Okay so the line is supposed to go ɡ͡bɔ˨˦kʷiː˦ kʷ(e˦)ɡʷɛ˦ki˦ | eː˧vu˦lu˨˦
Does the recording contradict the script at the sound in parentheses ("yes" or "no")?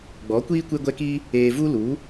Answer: no